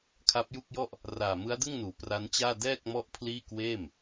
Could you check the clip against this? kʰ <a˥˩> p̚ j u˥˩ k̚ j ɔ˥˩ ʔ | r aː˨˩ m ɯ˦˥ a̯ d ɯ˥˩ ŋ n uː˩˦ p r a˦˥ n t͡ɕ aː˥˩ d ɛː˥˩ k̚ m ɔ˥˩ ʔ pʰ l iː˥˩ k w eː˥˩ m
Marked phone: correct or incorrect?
incorrect